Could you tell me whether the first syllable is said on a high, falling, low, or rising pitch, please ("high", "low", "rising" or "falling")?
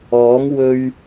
rising